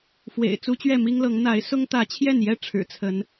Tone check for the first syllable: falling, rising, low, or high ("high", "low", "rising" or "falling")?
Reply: low